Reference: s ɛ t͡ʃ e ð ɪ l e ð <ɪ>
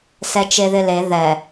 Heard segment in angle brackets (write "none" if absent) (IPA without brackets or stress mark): ɛ